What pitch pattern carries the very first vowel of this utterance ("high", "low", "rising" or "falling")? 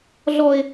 high